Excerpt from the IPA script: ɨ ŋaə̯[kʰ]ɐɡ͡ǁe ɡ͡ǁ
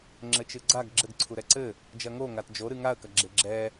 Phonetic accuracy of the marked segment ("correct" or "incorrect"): incorrect